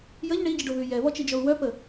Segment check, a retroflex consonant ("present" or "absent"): present